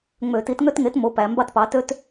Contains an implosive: no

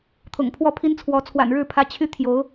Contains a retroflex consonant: yes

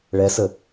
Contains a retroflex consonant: yes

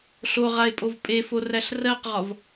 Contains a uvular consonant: yes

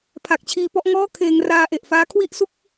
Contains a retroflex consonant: no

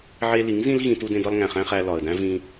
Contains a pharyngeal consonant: yes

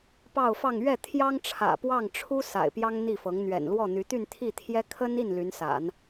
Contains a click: no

